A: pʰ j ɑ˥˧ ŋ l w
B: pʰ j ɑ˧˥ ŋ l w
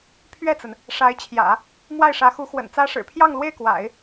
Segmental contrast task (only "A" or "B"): A